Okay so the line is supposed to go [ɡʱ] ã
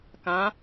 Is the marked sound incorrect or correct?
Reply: incorrect